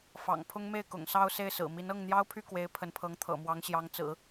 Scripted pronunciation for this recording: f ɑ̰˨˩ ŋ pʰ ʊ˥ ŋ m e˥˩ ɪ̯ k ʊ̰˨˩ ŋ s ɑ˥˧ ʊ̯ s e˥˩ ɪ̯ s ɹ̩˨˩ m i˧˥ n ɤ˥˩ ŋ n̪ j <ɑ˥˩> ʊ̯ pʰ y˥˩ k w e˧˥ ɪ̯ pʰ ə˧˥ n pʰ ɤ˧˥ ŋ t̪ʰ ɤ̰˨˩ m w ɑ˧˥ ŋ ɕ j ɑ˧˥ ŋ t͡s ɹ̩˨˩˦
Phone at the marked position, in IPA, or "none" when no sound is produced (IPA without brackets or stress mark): ɑ˥